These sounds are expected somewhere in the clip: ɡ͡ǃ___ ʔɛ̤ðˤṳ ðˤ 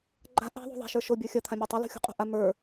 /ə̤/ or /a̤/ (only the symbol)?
a̤